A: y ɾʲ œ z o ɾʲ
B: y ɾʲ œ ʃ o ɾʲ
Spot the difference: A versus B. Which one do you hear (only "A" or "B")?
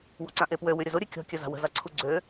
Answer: A